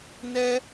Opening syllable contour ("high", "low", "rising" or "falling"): high